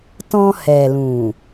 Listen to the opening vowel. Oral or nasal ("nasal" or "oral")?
nasal